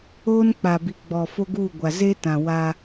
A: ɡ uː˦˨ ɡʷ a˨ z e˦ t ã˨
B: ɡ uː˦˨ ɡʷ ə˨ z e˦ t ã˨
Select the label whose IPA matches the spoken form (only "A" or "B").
A